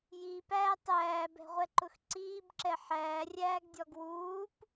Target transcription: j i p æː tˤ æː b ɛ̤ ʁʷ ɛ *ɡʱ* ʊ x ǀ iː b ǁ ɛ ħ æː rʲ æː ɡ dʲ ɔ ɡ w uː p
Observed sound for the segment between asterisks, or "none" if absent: ǃ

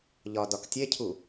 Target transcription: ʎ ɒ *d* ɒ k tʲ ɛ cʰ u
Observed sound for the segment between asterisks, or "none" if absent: d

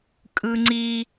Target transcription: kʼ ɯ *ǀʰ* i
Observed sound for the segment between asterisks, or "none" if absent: ŋ͡ǀ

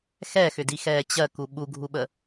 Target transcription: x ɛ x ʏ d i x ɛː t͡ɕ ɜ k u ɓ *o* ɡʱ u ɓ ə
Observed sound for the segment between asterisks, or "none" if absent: u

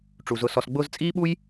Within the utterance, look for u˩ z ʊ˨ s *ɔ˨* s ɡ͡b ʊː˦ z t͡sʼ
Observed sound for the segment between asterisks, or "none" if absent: ɔ˨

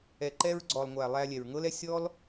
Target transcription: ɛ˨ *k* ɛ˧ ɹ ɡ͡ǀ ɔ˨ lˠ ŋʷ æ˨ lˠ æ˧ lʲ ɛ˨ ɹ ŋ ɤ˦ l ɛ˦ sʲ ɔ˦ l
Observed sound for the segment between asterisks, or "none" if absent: ǃ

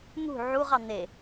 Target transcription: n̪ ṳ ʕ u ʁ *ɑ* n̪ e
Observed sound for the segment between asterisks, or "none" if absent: ɑ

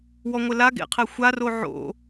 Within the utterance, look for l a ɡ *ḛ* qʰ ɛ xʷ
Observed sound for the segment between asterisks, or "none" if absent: ḛ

